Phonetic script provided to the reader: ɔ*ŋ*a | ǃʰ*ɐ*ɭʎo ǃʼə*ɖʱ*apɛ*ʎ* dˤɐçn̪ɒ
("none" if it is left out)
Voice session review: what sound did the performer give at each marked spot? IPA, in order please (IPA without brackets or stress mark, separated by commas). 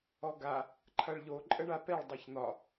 ɡ, ɐ, ɳ, ɭ